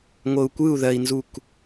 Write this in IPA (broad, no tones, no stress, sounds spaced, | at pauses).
ŋʷ ɤ u̯ kʷ ɯ u̯ ð ɜ i̯ n z u k